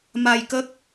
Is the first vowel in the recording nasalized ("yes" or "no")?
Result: no